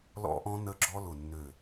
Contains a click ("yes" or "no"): yes